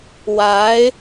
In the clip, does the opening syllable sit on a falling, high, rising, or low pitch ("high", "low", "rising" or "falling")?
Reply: rising